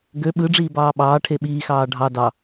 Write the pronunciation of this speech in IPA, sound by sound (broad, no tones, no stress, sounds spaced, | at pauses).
ɡ ø ɓ ɯ ɖ͡ʐ iː b ɑː ɓ ɑː ʈʰ e ɓ iː x ɑː ɖʱ ɑ d ɑ